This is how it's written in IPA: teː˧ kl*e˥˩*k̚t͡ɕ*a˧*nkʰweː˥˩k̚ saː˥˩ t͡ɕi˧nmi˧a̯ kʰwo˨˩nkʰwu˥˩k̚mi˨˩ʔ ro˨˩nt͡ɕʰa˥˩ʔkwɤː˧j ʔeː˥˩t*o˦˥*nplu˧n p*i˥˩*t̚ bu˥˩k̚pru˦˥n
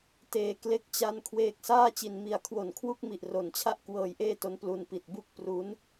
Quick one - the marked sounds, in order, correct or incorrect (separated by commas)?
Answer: correct, incorrect, correct, incorrect